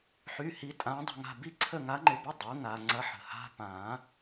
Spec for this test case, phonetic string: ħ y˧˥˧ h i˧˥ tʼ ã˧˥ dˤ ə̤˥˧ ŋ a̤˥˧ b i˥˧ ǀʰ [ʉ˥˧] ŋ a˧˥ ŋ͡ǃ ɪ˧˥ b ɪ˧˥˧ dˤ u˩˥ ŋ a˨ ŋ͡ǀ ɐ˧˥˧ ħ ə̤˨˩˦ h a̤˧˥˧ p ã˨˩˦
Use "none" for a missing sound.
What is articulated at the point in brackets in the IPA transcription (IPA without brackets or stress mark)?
ə˥˧